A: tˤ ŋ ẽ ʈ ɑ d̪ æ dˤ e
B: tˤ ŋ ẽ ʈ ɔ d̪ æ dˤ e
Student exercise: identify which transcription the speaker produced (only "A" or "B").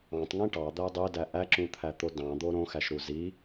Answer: A